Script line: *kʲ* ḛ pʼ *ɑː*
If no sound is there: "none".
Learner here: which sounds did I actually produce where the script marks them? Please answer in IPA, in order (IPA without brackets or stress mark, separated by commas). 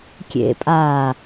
kʲ, aː